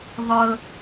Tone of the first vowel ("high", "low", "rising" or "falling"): high